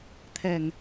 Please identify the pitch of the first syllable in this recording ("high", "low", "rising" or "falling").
low